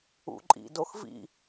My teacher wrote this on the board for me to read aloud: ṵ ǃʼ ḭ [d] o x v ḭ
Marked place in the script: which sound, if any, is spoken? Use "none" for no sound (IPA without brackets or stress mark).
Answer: d